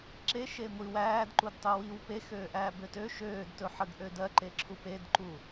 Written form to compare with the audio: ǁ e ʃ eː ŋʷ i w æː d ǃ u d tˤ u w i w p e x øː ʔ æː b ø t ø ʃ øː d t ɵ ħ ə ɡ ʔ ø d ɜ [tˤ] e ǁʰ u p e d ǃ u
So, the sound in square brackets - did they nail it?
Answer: no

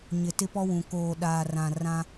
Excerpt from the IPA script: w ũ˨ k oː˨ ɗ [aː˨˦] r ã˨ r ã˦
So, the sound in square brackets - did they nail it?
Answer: no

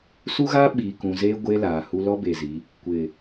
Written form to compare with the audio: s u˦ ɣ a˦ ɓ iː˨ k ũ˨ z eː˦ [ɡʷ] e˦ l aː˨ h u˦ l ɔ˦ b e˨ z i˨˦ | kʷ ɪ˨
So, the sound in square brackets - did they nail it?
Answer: yes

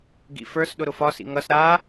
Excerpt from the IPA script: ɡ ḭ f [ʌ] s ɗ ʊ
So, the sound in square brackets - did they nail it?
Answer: no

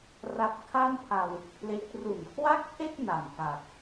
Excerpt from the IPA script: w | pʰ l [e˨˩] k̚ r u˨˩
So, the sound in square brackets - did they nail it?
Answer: no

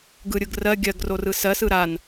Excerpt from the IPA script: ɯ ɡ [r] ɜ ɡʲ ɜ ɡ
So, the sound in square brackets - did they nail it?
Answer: yes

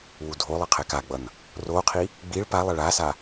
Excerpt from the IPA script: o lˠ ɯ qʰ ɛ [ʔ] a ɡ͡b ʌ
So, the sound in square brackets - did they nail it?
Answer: no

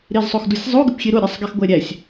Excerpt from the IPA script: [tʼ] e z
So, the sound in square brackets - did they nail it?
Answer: no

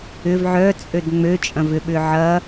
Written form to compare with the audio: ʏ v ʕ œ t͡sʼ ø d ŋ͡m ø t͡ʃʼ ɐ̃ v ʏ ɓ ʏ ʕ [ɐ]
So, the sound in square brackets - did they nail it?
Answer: yes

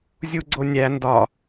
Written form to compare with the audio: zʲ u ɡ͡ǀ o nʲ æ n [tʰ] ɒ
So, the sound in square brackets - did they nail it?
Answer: no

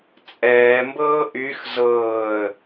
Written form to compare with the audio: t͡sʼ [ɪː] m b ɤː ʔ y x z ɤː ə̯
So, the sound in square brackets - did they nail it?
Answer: no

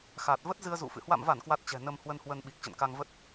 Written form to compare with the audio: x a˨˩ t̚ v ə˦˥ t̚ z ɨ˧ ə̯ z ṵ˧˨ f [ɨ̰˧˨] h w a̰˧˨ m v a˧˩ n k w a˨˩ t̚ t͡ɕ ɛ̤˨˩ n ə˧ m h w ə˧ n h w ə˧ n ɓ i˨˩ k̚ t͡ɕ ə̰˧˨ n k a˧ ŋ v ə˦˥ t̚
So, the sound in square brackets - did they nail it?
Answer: yes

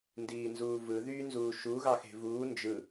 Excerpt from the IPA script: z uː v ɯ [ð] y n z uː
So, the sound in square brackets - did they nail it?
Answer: yes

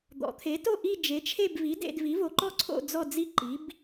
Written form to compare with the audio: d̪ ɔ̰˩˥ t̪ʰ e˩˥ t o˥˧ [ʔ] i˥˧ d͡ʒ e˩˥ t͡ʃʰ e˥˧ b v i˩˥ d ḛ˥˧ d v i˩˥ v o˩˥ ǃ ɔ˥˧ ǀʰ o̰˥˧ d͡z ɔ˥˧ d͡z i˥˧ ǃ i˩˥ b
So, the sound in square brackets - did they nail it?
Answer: yes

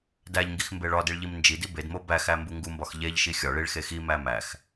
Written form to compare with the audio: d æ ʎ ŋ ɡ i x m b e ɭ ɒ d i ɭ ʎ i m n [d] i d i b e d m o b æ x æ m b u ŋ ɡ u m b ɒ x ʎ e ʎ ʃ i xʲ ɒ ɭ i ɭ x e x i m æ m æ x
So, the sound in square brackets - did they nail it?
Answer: no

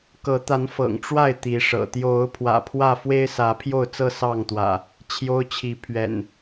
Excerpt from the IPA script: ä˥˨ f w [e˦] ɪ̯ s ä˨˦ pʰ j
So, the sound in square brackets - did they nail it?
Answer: yes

